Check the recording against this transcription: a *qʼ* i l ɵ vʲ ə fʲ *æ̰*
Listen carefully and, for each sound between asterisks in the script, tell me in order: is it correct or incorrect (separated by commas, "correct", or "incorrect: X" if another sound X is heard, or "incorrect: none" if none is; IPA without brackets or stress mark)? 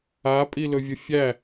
incorrect: pʼ, incorrect: æ